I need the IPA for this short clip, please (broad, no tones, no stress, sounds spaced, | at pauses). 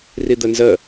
r i d̪ ə n z ə